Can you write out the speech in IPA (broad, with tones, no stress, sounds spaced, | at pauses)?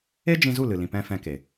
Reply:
e˦ d͡ʒ ĩ˧ z u˦˨ l ɨ˨ l ĩ˨ p ɛ̃˧ f ɛ̃˧ k e˨